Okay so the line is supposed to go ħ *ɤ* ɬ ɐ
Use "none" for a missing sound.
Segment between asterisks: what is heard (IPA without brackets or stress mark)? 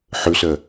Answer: ɵ